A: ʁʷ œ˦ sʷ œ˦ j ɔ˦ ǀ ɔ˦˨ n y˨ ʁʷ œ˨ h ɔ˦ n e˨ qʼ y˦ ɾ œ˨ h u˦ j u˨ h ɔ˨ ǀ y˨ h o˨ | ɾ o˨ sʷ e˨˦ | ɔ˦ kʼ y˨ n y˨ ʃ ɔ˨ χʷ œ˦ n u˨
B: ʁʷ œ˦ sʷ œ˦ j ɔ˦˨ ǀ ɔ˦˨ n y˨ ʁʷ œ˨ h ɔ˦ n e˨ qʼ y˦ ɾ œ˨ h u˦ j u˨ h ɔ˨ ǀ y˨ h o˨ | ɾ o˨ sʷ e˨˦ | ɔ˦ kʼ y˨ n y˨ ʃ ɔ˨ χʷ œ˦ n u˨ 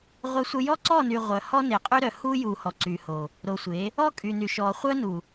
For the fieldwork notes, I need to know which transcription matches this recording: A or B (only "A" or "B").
A